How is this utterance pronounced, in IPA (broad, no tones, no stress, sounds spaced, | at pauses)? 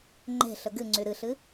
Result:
ŋ͡ǃ e̤ ɬ ə ɡ ɨ ŋ͡ǀ y ɾ ɨ ɬ ɨ